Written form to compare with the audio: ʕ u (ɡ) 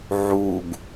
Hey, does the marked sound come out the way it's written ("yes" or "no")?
yes